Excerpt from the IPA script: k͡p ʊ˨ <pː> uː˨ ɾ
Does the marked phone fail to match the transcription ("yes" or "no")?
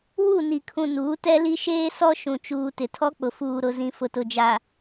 yes